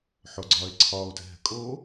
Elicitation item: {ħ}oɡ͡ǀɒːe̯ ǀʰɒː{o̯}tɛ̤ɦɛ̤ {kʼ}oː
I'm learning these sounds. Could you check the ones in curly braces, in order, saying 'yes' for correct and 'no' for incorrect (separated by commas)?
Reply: yes, yes, yes